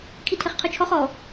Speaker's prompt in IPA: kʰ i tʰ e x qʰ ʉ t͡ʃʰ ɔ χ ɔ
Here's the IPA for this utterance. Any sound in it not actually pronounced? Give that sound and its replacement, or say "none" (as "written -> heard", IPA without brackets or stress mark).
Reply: x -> χ